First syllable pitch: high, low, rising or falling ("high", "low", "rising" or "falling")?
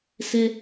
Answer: high